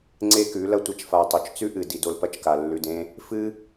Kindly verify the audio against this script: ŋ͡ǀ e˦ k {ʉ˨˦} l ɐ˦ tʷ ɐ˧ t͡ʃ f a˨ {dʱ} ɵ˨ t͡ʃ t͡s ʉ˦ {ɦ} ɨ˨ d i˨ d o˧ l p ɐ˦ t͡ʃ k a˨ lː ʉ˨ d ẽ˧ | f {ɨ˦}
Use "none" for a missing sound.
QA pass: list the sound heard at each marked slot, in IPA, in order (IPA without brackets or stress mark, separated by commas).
ʉ˨˦, tˤ, ʔ, ɨ˦